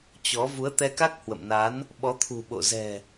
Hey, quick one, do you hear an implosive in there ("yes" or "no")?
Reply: yes